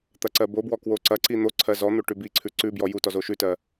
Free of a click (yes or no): no